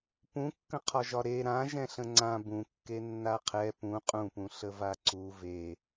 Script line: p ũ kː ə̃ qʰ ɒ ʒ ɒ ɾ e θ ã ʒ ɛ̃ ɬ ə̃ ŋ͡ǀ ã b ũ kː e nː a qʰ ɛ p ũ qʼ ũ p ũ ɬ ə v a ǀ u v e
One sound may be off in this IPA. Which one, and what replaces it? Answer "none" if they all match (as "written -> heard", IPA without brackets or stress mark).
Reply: θ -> ɾ